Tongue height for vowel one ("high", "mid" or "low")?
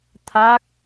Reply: low